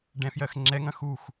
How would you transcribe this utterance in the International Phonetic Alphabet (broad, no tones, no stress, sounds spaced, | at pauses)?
ɖ ɛ̃ f j ɜ x ŋ͡ǁ ɛ ŋ ɐ̃ x u x